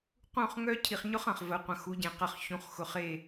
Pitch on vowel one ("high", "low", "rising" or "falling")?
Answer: falling